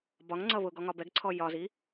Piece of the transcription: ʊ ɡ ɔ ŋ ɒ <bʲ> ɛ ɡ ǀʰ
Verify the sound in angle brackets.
incorrect: b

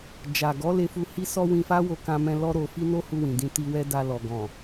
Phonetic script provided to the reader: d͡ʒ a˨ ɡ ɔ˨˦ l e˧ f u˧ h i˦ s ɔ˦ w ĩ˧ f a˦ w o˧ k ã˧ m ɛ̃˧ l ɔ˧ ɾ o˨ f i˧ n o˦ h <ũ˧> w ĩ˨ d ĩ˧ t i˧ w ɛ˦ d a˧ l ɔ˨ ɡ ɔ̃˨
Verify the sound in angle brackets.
incorrect: u˧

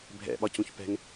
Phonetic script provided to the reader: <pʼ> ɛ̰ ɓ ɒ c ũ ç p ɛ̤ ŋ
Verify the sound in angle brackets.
incorrect: bʱ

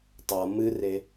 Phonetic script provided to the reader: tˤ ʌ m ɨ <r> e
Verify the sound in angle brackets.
correct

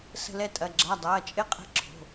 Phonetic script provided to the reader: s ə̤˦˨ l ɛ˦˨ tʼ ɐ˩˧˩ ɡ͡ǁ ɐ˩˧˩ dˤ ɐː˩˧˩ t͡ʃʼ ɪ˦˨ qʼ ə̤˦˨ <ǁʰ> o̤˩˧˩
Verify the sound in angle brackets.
correct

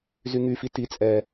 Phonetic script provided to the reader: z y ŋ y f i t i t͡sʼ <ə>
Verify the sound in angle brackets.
incorrect: ɛ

